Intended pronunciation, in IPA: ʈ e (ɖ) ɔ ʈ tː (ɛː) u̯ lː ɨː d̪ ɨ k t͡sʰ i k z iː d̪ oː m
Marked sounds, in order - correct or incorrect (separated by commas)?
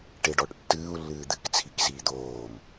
correct, incorrect